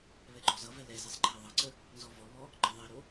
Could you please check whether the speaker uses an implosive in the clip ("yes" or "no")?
no